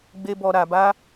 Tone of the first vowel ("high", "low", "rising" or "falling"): high